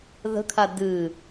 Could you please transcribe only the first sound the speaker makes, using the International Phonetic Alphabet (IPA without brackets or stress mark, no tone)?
ð